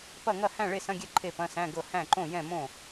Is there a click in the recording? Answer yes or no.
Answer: yes